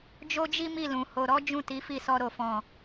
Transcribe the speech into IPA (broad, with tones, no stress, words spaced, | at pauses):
d͡ʒo˦d͡ʒi˦mi˦˨lũ˨ ho˨ɾɔ˨˦ d͡ʒũ˦˨ti˨˦fi˦˨sɔ˧ ɾo˨fɔ̃˨